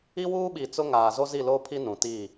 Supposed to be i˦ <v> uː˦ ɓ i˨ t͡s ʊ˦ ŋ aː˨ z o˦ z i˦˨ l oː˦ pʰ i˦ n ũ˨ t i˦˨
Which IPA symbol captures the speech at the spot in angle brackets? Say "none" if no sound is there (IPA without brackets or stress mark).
w